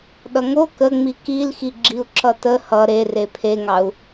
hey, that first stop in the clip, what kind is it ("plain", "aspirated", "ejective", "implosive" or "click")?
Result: implosive